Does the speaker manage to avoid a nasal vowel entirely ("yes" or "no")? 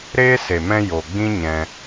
no